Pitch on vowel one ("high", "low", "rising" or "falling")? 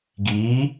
rising